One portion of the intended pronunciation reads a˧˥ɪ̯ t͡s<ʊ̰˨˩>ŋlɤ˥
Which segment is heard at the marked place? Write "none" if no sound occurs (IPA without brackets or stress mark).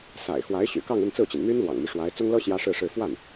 ʊ˥